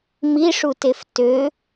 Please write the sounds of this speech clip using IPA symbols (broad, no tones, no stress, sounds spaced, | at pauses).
m i ʂ u t e f t ø